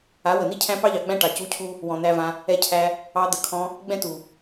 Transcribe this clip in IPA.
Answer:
a˨˦ w ə˨ n i˦ cʰ æ̃˦ p ɑ˦ ʎ ɑ˨ ɡ͡b æ̃˦ ʈ ɑ˨ c u˧ cʰ u˦ | w ɔ̃˨ n̪ æ˧ v ã˧ | ɛ˧ cʰ æ˧ | ɑ˧ d̪ ə˨˦ kʰ ɔ̃˧ | ɡ͡b ɛ̃˦ t u˨

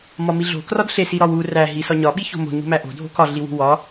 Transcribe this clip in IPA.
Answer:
m ɒ m i ɮ o̤ k r ɒ d ɬ e s i ɾ ɒ w u r æ ɦ i s ɒ ɲ ɒ ɓ i ç o̤ m o̤ ɲ ṳ m æ ʔ o̤ dʱ o̤ k ɒ ɮ i w ṳ w ɒ

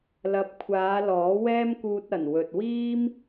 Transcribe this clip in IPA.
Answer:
l ɐ˨ p̚ kʷʰ aː˨˧ l ɔː˨˥ w ɛː˥ m k uː˧ t̚ ɐ˨˩ n w ɵ˨ t̚ w iː˥ m

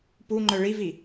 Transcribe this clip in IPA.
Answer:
p u ŋ͡ǃ œ ɭ i v i

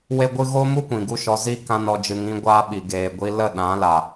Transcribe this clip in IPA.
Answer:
w e˦ ɡʷ ɨ˦ ɣ o˦ m u˦ kʷ ĩ˨ ɡ u˦ ʃ ɔ˧ z i˦ k ã˦ n ɔ˧ d͡ʒ ɨ˧ ŋ ĩ˦ ɡʷ aː˦ ɓ i˨ ɡ eː˨ ɡʷ i˧ l ə˦˨ ɗ ã˨˦ l a˨

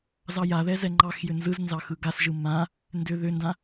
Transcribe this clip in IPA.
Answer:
z ɑ j a ð ɛ z ɛ ŋ͡ǃ ɑ x j ʏ n z ɯ z n z ɑ x ɯ ɡ a s ʒ ɯ m ã | n d ʏ ð ʏ n d ã

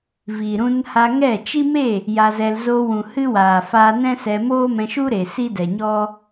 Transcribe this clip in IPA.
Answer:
v iː˨ ɾ ũ˧ n h a˧ ŋ ɛ˦˨ t͡ʃ i˦ m e˦˨ | j a˧ z ɛ˧ l z o˧ w ũ˨ h ɨ˦ w aː˨ f aː˧ n ɛ̃˦ s ɛ˧ m oː˦ m ɛ̃˧ ʃ u˦ ɾ e˨ s i˦ d ɛ˨ ɲ ɔ˦

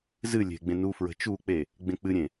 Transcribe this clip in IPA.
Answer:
z ɨ lʲ e̤ ɡ͡b ẽ n u f ɹ ə̤ t͡ʃ u k͡p e | ɡ͡b ẽ k͡p ɨ ɾʲ ẽ

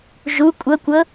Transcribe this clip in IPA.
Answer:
ʒ u kʷʼ ɤ kʷ ɤ

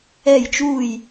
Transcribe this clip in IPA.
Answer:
ɛ˧˩ j t͡ʃ u˧˩ j

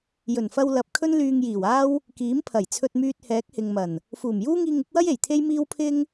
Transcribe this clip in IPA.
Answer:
j ɵ˨˩ n f ɐ˧ w l ɐ˨ p̚ kʰ ɵ˥ n l yː˧ ŋ j iː˨˩ w aː˥ w | k iː˨˥ m pʰ ɐ˨˩ j t͡sʰ ɵ˧ t̚ m yː˧ t̚ h ɛː˨˥ k̚ h ɪ˨ ŋ m ɐ˨˩ n | f uː˨˩ m j uː˥ ŋ iː˧ ŋ ɪ˨˥ k̚ w ɐ˥ j e˨˩ j t̪ʰ e˥ j m iː˥ w pʰ ɪ˥ ŋ

